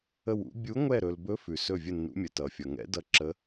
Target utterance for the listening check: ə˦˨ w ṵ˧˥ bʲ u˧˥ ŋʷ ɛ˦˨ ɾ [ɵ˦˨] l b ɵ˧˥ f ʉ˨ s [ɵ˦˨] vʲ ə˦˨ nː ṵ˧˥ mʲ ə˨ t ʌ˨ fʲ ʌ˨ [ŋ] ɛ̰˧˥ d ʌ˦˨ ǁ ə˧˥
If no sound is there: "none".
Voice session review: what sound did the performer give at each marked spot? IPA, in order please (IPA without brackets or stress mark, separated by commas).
ɵ˨, ɵ˦˨, ŋ